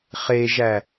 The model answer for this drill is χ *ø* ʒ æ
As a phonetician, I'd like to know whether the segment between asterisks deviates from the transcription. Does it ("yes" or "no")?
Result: yes